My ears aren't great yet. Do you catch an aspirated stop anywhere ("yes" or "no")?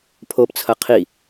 yes